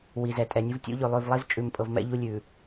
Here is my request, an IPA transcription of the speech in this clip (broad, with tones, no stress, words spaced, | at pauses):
wi˨zɛ˨tʼɛ˨nʲu˦v tʲṵ˦ʎʉ˨ lˠʉ˨vlˠi˦z t͡ʃʼʉ˨mpʼɤ˨vmɛ̰˦ ʎu˦lʲʉ˨